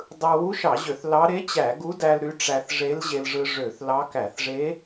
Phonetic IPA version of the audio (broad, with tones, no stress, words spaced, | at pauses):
dˤɯ˧ wu˧˥ʃɑ˧˩˧ʑø˧˩˧θ lɑ˧˥ ɾe˧˥t͡ɕæ˧˩˧ ɡu˧˥dæ˧l ɾy˧˥ʈ͡ʂæ˧θ ʐe˧˥lʑe˧lʐɯ˧ ʐø˧˩˧θlɑ˧˥ kæ˧˩˧θʐe˧˥